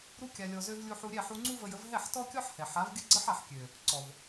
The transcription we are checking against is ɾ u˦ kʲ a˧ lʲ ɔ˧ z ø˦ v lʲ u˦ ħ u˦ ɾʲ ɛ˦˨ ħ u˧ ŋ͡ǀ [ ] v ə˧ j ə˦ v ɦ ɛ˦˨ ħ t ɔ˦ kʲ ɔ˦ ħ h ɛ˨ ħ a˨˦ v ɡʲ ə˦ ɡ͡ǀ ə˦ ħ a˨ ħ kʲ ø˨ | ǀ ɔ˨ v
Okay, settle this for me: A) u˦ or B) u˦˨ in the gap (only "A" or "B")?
A